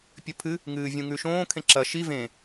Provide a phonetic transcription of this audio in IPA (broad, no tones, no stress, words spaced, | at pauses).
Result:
pʲɵpʰɨ | ŋɨːvʲũŋʉʃõː kʰẽǁɐ ʃi vẽ